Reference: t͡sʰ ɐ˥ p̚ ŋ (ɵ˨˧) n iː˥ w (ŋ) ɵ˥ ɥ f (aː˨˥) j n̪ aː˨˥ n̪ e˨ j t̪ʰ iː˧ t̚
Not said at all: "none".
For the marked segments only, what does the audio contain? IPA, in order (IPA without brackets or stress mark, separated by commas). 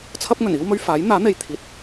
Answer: ɵ˨˩, m, aː˨˥